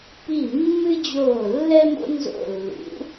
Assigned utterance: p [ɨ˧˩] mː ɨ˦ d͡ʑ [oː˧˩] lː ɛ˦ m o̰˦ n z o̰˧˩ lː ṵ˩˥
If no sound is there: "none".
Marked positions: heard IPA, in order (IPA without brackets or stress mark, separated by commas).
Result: i˧˩, oː˧˩